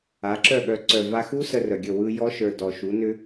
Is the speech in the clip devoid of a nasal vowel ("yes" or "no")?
yes